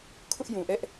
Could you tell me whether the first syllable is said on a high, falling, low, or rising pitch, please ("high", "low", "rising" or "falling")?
high